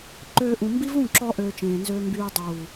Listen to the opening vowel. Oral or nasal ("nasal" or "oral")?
oral